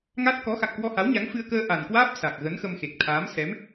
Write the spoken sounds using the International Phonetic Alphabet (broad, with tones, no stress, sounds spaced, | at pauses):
ŋ a˦˥ t̚ k ɔ˨˦ x a̰˧˨ ŋ k w ɔ˧ h a˨˦ w ɲ a˨˦ ŋ f ɨ˧ ə̯ k əː˧ ʔ a˨˩ n k w aː˦˥ p̚ s a˨˩ k̚ ɣ ə˨˦ n x ə˧ m x e˨˩ k̚ t̪ʰ aː˨˦ m s ɛ˨˦ m